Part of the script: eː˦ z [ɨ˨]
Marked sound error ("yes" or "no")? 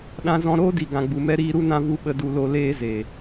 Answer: yes